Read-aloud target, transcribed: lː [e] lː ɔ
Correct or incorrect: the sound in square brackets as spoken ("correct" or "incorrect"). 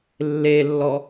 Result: correct